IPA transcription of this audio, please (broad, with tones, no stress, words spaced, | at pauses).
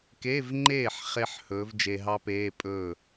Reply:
ke˧˥˧vŋ͡ǃeː˥˩ħ χe˦˥ħ hɵː˨˥vd͡ʒe˧ɦɑ˦˥peː˧˥˧ pʼɵː˥˩